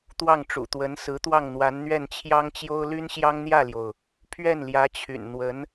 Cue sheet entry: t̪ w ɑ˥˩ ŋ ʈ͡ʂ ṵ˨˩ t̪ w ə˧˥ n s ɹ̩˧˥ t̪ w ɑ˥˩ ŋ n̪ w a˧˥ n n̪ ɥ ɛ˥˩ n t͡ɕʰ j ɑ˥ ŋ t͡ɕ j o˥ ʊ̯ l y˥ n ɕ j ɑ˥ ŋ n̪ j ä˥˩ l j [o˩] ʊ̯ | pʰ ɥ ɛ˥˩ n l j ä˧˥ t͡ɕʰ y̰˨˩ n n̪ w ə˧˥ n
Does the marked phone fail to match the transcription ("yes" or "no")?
no